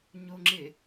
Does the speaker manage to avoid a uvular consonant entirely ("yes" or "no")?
yes